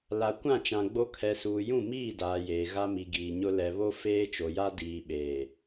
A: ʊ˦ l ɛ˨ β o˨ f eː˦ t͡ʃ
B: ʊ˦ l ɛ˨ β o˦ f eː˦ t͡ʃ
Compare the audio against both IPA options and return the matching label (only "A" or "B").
B